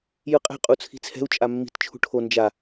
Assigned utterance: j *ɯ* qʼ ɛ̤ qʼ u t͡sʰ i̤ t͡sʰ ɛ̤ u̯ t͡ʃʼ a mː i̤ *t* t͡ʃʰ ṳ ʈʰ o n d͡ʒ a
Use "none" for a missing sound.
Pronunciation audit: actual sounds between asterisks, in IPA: ɯ, t

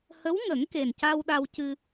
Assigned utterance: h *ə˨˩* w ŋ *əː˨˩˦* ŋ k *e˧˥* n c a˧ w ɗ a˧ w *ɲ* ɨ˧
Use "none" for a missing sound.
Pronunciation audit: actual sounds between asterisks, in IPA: ə˧˥, ə˨˩˦, e˨˩, c

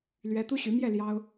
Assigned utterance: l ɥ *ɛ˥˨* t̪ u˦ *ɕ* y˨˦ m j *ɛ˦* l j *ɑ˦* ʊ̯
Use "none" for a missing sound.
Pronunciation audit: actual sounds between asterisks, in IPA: ɛ˦, ɕ, ɛ˥˨, ɑ˦

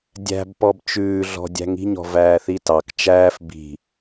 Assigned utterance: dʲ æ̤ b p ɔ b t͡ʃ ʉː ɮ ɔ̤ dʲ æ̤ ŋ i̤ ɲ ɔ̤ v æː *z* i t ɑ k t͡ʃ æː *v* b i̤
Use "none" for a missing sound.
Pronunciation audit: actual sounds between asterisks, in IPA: θ, f

